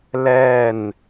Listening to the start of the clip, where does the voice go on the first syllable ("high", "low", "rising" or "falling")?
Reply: falling